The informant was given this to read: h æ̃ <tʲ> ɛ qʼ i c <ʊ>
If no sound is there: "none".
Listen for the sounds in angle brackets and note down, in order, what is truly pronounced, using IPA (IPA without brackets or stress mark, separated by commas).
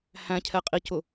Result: cʰ, ʊ